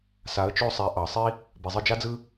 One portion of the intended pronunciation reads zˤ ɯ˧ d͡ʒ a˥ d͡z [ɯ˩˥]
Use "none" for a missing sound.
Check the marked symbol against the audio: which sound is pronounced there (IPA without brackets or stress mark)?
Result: ɯ˥